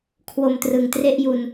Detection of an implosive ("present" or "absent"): absent